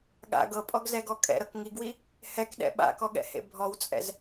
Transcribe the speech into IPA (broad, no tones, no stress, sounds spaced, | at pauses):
ɠ a̰ ɡ ɤ pʼ ɔ ɡ z ɛ ɡ ɔ kʼ ɛ̰ ɾ ɤ k ŋ i ɡ w i | h ɛ k ɗ ɛ̰ ɓ a̰ k ɔ ɠ ɛ̰ h ḛ bʱ ɔ w t͡sʼ ɛ̰ z